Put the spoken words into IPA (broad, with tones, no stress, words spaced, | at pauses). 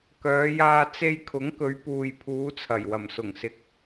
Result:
kœː˨˧jaː˧ t͡se˧jkʰʊ˨˥ŋkɵ˨˧ɥ puː˨jpʰuː˨˧t͡sʰɐ˨˩jwɐ˨˩m sʊ˨˩ŋsɪ˨˥k̚